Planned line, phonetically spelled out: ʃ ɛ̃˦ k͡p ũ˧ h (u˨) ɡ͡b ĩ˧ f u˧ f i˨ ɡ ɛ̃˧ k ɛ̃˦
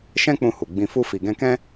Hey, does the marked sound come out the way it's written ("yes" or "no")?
yes